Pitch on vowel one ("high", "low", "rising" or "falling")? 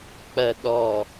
low